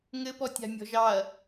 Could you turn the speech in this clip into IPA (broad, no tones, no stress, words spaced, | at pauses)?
ŋɘpɔtʲa̤ mʲɔ̤ʒɑɐ̯